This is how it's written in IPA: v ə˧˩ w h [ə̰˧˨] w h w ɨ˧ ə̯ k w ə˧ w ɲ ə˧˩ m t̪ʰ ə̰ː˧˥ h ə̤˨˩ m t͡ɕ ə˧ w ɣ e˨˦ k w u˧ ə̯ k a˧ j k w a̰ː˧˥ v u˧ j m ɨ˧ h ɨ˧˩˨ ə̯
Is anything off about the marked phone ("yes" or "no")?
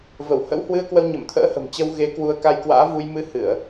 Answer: yes